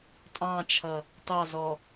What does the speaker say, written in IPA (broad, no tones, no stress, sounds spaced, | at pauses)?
tʼ ɑ̃ t͡ʃʰ ʌ | t ɑ z ɔ